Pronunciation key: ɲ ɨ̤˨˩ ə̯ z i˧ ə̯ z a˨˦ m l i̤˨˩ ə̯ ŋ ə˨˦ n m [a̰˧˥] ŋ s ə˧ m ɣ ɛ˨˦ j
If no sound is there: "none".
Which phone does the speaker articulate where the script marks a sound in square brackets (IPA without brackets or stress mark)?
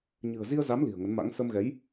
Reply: a̰˧˥